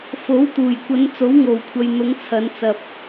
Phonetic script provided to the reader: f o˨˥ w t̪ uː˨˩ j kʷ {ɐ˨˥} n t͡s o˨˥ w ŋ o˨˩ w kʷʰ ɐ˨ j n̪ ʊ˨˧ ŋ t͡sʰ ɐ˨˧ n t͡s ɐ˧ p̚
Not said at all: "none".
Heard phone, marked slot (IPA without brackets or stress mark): ɐ˨˧